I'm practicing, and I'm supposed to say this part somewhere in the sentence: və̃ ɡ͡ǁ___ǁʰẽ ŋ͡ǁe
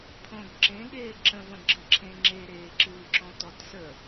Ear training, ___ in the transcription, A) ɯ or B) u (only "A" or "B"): A